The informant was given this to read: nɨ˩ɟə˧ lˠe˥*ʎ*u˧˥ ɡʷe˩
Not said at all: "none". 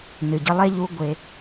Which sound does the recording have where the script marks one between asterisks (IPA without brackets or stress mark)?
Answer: ʎ